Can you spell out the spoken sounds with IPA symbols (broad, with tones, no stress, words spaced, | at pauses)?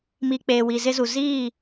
mi˨ k͡peː˨wi˨zɪ˦zu˨ ziː˦˨